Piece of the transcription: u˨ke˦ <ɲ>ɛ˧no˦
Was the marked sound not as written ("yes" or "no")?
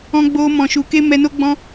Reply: yes